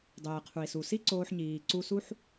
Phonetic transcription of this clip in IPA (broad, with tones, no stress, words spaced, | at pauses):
dˤeː˩qʰu˩i̯ su˩si˥ ǀoː˧ħɲiː˩ ǀu˧su˥ħ